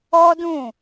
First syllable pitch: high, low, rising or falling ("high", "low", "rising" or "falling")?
high